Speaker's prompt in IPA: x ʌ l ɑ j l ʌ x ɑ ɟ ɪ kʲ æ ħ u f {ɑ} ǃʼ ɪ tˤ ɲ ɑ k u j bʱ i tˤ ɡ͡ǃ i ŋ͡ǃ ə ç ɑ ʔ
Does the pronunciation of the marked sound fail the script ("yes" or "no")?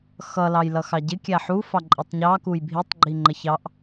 no